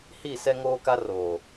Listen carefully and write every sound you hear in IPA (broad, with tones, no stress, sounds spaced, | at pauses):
h i˦˨ s ɛ˦ ŋ oː˦ k a˦ r oː˨